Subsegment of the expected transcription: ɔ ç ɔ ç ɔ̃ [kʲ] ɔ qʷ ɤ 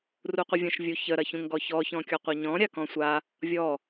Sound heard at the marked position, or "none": kʲ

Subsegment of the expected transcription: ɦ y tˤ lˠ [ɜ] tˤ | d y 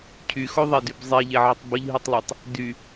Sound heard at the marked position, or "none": ɛ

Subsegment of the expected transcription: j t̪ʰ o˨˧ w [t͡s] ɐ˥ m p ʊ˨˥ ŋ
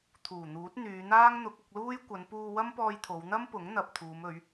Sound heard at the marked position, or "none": n̪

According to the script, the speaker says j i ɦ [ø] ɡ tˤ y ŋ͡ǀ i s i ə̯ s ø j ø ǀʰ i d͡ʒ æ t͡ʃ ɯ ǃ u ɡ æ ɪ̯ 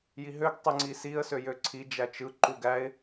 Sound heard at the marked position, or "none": ø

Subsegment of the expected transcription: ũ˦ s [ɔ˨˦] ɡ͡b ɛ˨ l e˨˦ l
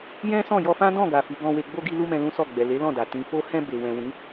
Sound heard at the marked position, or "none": ɔ˦˨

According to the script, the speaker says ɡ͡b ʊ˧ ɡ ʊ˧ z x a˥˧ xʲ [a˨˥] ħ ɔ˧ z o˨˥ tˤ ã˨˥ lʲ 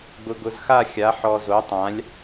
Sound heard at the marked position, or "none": a˨˥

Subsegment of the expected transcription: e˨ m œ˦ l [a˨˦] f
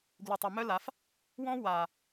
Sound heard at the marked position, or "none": a˨˦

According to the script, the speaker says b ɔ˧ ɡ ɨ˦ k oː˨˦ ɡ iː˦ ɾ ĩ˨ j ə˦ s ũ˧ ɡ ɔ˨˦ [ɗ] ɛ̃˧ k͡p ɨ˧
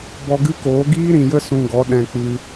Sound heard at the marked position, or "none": ɗ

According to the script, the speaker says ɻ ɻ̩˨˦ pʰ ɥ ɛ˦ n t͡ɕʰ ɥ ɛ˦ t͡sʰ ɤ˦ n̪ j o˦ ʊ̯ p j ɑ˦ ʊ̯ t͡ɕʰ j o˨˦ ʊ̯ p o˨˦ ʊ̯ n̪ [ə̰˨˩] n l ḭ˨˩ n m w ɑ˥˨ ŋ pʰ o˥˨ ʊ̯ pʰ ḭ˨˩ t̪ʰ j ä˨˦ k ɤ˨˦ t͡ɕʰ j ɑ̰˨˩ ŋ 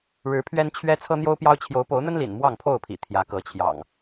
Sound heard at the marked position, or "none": ə˦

